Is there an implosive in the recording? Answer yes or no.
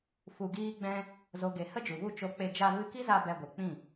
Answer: no